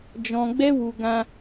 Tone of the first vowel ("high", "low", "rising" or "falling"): low